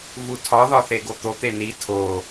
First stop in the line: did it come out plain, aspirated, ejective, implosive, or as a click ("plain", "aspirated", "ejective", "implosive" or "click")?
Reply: aspirated